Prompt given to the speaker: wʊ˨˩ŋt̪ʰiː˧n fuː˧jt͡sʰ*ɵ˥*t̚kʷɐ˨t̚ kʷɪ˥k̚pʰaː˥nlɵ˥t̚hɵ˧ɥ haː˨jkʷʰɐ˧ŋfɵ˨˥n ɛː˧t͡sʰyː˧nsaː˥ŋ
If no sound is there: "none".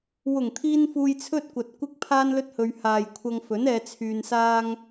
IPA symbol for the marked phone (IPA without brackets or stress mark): ɵ˥